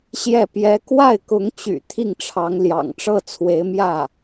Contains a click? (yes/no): no